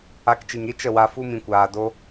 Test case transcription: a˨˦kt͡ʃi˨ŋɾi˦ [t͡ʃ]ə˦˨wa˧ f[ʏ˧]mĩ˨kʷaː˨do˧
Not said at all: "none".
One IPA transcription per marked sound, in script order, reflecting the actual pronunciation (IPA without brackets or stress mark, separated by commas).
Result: t͡ʃ, u˧